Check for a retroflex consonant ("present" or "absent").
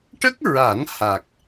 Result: present